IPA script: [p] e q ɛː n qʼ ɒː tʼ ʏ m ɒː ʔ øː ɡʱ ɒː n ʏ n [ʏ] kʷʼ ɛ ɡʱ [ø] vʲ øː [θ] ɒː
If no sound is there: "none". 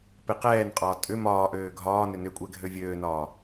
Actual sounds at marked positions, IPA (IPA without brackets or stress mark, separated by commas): p, ʏ, ø, n